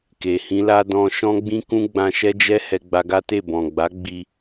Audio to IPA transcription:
k e˨ h ĩ˧ l a˧ d ɔ̃˧ ʃ ɔ̃˦ ɡ͡b ĩ˦ k ũ˦ ɡ͡b ã˧ ʃ ɛ˦ d͡ʒ ɛ˦ h ɛ˧ ɡ͡b a˧ ɡ a˦ t e˦˨ b ɔ̃˨ ɡ͡b a˨˦ ɡ͡b i˧

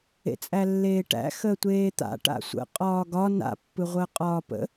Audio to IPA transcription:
ḛ t͡sʼ æ lː eː ʈ æ̰ x əː tʷ eː t̪ a̰ ʈ a̰ sʷ ə̰ qʼ ɒː ɡ ɒ n a̰ pː ɯ ʁʷ əː qʼ ɒː p ə̰

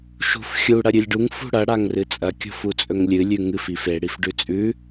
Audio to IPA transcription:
ʃ ṳ f xʲ u ɽ ɐ ɾʲ ʉ lʲ ɖ u ŋ f ṳ ɽ ɐ ɽ a ŋ r ɨ t͡sʼ ɐ kʲ o̤ f u t͡sʼ ɵ ŋ lʲ ɨ lʲ ʉ ŋ ɨ f i f e ɽ i f ɖ ʉ t͡sʼ ʉ

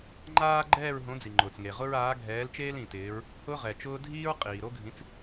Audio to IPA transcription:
ŋ͡ǃ aː˥ ɡ͡ǃ ɛː˥˨ ɹ ɦ õ˨˥ d͡z i˩ ŋ͡ǃ ʊː˩ t͡s ŋ e˩ ʁ ʊ˥ ɹ aː˨˥ ɡʱ ɛː˨˥ l t͡ʃ eː˥ l ĩ˩ t ɪː˨˥ ɹ | h ʊː˥ ʁ ɛ˩ t͡ʃ ʊː˥ dʱ iː˥ ɹ qʼ iː˩ ɾ o˥ ɡʱ ĩ˨˥ t͡s

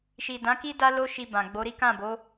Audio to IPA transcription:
ʃ i˨ d ã˨˦ k i˦ d a˦ l o˦ ʃ i˧ b ã˨ ɡ͡b o˨˦ ɾ i˦ k ã˦˨ b o˨˦

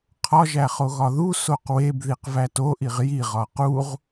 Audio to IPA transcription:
qʰ ɒ ʒ æ χ o ɣ ɒ ð u s o q w e b ð i q v æ t o ʔ i ʁ j i ʁ ɒ q u ʁ

